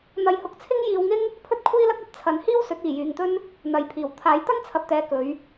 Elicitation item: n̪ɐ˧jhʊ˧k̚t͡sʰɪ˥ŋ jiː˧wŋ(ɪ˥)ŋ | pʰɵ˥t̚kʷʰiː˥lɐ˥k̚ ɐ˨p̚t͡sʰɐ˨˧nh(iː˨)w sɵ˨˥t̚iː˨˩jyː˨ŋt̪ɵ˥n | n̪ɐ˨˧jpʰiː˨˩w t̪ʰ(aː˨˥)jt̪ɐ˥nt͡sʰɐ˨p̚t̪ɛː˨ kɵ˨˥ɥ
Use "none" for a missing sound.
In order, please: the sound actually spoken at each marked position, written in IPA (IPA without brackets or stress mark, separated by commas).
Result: ɪ˥, iː˥, aː˨˥